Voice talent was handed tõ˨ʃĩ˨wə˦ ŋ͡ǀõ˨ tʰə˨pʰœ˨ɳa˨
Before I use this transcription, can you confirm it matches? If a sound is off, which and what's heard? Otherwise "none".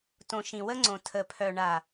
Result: none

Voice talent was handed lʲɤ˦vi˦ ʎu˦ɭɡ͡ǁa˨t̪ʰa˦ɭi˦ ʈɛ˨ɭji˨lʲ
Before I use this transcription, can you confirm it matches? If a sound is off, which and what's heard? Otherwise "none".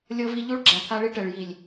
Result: none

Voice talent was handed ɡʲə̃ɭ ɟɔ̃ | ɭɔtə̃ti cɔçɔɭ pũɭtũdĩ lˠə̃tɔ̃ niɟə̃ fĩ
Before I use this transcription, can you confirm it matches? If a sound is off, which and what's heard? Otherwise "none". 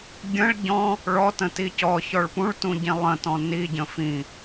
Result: d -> ɟ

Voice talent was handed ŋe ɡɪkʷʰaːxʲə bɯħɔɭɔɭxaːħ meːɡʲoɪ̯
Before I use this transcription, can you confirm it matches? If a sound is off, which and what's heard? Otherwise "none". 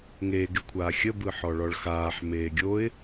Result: none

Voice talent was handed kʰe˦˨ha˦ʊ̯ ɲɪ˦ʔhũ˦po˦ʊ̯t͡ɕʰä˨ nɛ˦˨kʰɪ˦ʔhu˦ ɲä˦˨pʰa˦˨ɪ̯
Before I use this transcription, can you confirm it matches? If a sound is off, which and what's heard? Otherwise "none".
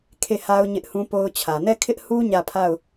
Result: ɪ̯ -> ʊ̯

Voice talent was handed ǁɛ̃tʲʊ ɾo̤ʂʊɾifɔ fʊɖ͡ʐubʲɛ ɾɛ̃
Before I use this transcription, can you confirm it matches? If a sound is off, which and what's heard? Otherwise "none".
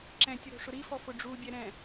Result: none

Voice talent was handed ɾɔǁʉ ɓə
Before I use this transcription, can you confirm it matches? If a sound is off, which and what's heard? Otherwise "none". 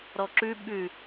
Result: ə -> ʉ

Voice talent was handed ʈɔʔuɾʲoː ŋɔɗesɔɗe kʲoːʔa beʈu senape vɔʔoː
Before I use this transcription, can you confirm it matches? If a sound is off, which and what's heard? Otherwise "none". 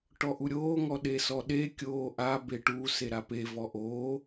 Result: n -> ɾ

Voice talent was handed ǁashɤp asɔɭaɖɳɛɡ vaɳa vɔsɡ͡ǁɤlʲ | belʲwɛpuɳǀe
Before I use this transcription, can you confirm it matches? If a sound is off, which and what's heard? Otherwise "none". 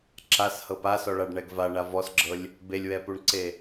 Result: none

